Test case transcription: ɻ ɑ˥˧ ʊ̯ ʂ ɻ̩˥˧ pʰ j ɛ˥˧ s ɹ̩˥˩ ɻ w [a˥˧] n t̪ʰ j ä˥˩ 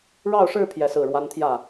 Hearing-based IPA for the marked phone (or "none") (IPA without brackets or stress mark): a˥